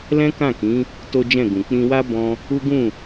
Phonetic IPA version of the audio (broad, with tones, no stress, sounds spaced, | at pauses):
l ɛ̃˦ k ã˦˨ k ĩ˨˦ | t o˦ d͡ʒ ɛ̃˦˨ ɡ ũ˨ k͡p ĩ˧ w a˦ b ɔ̃˧ | u˦ ɡ ũ˦˨